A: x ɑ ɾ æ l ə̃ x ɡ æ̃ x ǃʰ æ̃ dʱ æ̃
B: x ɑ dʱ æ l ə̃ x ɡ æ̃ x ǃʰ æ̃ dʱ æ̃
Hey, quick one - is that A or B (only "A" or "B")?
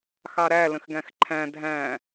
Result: A